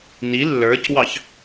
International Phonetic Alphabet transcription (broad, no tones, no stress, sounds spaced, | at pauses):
n i lː ə˞ c w ɑ ç